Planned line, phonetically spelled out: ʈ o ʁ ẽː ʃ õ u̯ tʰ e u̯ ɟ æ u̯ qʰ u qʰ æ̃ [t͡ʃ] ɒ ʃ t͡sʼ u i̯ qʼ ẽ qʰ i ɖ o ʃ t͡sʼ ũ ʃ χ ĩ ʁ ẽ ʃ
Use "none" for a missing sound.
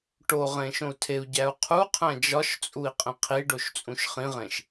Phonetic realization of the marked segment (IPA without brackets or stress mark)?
d͡ʒ